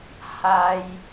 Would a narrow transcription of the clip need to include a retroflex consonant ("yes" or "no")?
no